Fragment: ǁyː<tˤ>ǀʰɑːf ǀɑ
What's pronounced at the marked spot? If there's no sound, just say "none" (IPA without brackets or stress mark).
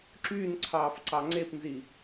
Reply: n